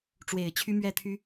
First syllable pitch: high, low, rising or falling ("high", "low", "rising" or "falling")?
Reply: low